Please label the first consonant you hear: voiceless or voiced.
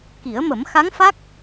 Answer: voiceless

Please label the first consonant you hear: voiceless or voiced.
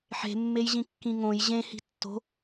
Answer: voiceless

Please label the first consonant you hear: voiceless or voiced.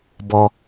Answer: voiced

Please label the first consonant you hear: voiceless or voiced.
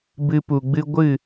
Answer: voiced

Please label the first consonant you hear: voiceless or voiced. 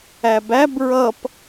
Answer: voiced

